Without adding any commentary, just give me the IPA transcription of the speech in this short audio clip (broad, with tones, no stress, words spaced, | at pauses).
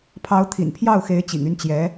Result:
pʰɑ˧˥ʊ̯t̪ʰḭ˨˩npʰjɑ˥˩ʊ̯xe˧˥ɪ̯ t͡ɕḭ˨˩ŋy˥˩n t͡ɕjɛ˧˥